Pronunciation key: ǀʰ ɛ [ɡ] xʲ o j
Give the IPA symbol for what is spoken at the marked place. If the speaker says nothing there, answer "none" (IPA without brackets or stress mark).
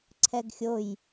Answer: ɡ